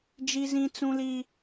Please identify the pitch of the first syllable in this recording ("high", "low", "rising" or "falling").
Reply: high